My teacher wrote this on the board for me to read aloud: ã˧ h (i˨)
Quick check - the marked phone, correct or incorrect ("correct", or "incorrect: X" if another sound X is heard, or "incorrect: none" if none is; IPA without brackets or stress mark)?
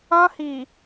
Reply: correct